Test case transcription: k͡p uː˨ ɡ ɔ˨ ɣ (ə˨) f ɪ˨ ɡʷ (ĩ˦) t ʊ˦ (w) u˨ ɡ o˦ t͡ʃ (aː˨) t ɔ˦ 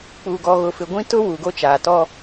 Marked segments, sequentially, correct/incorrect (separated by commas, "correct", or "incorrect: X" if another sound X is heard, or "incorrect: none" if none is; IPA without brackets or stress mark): incorrect: ʊ˨, correct, correct, correct